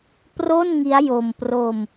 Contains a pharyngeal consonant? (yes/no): no